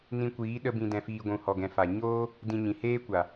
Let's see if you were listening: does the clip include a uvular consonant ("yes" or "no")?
no